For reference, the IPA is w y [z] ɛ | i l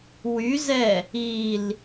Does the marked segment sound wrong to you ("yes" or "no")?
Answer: no